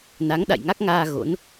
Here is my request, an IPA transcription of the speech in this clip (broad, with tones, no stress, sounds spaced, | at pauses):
n a˨˦ ŋ ɗ a̰˧˨ j ŋ a˦˥ k̚ ŋ aː˧ ɣ o̰˧˥ n